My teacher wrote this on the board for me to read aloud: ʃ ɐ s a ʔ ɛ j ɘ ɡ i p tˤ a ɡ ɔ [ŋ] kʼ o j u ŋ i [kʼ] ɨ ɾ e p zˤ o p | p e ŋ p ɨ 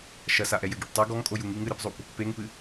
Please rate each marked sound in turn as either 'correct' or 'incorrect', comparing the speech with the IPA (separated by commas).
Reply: correct, incorrect